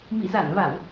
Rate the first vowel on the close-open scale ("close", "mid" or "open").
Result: close